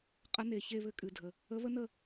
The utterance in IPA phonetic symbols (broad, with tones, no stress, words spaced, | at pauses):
qʼə˧˥ne˨˩ çe˥˨βɘ˥˨kʼɨ˨˩dʱə˨˩ | ə˧˥βə˥nə˥˨